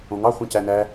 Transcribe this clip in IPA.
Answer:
õ ŋ ɑ χʷ ẽ c æ n æ

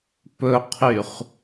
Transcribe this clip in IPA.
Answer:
p ɵ qʰ y χ

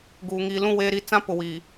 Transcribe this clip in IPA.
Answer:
ɡ uː˨ ŋ iː˨ l ũ˦˨ w eː˦ ɾ i˦ t͡s ã˦ p ʊ˨ w iː˨

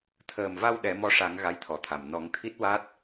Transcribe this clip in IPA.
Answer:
t̪ʰ əː˨˩ m v a˧ w ɗ ɛ˨˩˦ m ɔ˧ ʂ a˨˩˦ ŋ ɣ a˧˥ j t̪ʰ ɔ˨˩˨ t̪ʰ a˨˩ m n ɔ˨˩˦ ŋ t̪ʰ i˦˥ t̚ w a˦˥ t̚

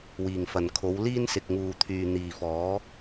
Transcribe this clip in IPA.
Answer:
w iː˨ ŋ f ɐ˨ n kʰ o˨˧ w l iː˥ n s ɪ˨ k̚ ŋ uː˨ t̪ʰ yː˨ n̪ iː˨ f ɔː˨˥

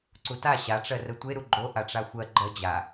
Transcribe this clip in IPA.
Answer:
ǀ u t a ɕ a ʈ͡ʂ ɜ r ə tʷ e ɾ u ɡ͡ǃ o ʔ a ʈ͡ʂ a xʷ ɜ ɡ͡ǃ ɜ d͡ʑ a

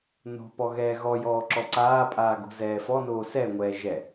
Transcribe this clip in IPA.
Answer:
n o̤ p ɔ ɣ ɛː ɣ ɔ j ɔː ǁ ɔ ǀ aː pʼ aː ɡ o̤ z ɛː f ɔ n oː s ɛ ŋʷ ɛː ʒ ɛ

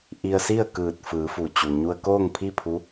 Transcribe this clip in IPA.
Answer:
ʔ i˧ ə̯ s i˥˨ ə̯ k ɯː˧˩ t̚ f ɯː˩˧ f u˩ t͡ɕ u˩ ɲ u˧ ə̯ k oː˥˨ ŋ pʰ i˥˨ pʰ u˧˥

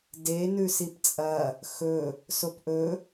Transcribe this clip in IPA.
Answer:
d e n ʉ s i p t͡sʼ ɐ | x ɵ | s o p ʔ ɵ

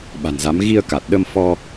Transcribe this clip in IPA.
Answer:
ɓ a̤˨˩ n z a˨˦ m ɣ i˧ ə̯ k a˨˩ t̚ ɗ ə˧ m f ɔ˧

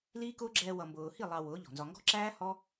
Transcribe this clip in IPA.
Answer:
l iː˦ k ʊː˦ ɡ͡ǁ ɛː˧ w ʌ˨ m b ʊː˨ h i˦˨ lˠ ɑ˧ w ʊː˨˦ ʎ ɔ̤˨ n z ɒ˨ ŋ ɡ ɔ̤˦ ǁ æː˦ h ɔ˦

